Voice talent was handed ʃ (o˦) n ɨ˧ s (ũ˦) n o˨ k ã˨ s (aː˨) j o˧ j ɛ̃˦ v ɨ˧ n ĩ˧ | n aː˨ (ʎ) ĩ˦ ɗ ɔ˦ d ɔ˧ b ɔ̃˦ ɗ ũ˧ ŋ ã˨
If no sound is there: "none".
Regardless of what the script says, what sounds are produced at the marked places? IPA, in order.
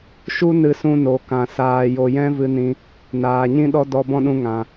u˦, ũ˧, aː˧, ɲ

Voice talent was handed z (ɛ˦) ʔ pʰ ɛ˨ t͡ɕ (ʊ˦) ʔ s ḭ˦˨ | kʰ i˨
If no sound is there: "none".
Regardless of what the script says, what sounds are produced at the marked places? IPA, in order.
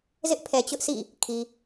ɪ˦, ʊ˦

